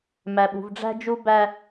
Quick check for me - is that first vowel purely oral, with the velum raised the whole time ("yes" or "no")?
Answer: yes